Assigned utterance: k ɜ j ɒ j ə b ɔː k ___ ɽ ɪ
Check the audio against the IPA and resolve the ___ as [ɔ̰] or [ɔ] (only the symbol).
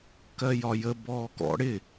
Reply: ɔ̰